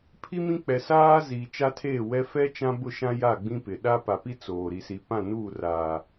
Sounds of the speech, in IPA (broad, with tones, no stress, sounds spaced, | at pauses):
pʰ i˦ m ĩ˦ k͡p ɛ˨ s aː˦ z iː˨ t͡ʃ a˦ tʰ eː˦˨ w ɛ˦ f ɛ˦ t͡ʃ ã˦ b ʊ˦˨ ʃ ã˦ j a˦˨ ɡ͡b ĩ˦ p ɪ˨ ɗ a˦ p a˨ p i˦ t͡s oː˨ ɾ i˨ s i˨ p ã˦˨ n uː˦˨ r aː˨